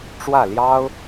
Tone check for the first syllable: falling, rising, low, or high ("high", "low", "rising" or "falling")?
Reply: falling